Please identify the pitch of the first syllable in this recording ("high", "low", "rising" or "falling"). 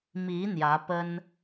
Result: rising